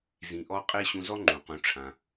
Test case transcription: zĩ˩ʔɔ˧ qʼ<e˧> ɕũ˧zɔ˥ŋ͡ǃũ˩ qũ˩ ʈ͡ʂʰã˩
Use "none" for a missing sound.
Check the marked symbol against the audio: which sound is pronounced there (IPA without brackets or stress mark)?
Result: e˧